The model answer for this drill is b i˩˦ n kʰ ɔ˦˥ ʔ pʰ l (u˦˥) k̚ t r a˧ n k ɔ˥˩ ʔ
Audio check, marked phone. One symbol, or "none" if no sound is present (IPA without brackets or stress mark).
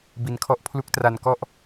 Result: u˦˥